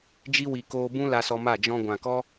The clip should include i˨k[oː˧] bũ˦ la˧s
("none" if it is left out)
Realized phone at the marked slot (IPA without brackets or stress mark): oː˧